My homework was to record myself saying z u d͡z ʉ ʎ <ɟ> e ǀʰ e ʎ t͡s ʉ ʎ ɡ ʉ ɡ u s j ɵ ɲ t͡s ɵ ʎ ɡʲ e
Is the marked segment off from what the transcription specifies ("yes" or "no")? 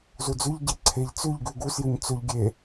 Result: no